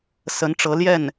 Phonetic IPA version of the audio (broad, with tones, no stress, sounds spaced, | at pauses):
s ə˧˥ n ʈ͡ʂ ɤ˧˥ l j ɛ˥˩ n